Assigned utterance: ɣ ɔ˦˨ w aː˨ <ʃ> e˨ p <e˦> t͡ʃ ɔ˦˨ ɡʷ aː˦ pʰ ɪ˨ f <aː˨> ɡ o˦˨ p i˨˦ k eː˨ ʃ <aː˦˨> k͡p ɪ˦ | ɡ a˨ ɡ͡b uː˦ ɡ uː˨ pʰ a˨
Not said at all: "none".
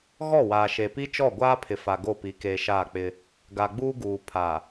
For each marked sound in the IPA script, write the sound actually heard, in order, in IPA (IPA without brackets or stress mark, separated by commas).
ʃ, i˦, a˨, aː˦˨